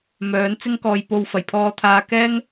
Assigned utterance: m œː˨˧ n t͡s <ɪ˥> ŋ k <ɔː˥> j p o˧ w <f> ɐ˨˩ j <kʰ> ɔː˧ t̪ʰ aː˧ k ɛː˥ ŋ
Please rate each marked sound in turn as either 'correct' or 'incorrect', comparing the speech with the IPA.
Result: correct, incorrect: ɔː˧, correct, incorrect: pʰ

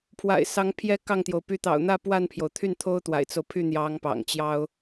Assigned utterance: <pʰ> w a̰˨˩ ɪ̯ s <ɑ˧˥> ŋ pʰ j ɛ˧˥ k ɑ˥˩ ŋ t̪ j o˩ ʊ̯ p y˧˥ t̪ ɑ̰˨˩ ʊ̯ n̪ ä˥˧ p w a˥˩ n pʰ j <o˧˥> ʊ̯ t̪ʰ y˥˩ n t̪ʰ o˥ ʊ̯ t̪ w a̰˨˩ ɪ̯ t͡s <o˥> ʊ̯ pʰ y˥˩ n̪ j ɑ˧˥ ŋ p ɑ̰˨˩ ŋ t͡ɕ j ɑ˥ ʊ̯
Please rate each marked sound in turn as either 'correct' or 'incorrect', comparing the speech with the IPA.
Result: correct, correct, incorrect: o˩, incorrect: o˦

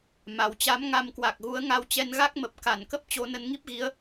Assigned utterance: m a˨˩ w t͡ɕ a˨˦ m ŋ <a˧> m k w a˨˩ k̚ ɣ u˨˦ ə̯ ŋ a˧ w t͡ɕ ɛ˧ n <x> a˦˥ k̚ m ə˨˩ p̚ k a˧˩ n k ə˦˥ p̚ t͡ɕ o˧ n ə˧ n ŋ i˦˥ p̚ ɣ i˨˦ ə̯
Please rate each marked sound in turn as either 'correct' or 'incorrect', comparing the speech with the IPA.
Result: correct, incorrect: ɣ

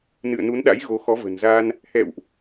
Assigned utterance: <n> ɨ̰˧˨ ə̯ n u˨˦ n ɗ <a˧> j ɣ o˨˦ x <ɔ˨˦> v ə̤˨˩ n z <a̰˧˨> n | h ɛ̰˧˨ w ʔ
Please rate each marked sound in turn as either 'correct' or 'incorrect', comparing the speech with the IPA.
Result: correct, incorrect: a̰˧˥, correct, incorrect: a˧

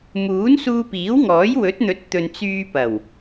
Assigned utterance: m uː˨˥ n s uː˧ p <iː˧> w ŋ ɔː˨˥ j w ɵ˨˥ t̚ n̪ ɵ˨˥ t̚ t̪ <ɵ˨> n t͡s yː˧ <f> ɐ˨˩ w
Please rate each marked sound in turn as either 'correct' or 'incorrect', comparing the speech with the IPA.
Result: incorrect: iː˨˥, correct, incorrect: p

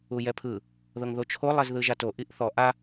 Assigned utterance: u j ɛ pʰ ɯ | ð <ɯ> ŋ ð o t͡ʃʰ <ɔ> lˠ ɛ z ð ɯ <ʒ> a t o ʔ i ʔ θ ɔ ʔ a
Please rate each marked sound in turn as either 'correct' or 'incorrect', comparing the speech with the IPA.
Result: incorrect: ɤ, incorrect: o, correct

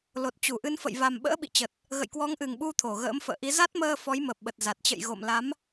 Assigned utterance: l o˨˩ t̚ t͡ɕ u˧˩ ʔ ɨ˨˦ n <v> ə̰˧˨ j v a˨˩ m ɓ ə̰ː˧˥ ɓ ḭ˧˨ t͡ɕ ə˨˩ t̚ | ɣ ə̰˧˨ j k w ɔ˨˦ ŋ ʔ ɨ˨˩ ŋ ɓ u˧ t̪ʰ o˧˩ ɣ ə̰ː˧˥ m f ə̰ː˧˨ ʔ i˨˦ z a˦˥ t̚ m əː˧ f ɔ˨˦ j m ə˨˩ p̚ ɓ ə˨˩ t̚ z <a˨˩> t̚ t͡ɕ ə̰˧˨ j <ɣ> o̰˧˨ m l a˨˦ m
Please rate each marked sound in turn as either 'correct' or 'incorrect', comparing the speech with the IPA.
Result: incorrect: f, correct, correct

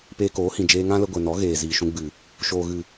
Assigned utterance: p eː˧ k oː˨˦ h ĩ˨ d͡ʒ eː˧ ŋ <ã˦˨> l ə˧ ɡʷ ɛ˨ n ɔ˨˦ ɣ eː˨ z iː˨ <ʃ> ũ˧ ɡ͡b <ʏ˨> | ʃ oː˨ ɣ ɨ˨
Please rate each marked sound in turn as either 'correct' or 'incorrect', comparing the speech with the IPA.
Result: incorrect: ã˦, correct, incorrect: ɨ˨

